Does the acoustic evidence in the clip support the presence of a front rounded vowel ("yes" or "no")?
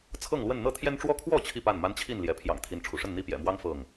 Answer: no